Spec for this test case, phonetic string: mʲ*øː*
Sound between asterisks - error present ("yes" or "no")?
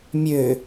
yes